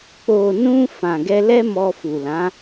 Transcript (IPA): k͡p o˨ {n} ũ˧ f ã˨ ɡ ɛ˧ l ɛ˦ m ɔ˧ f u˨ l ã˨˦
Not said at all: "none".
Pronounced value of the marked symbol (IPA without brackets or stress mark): n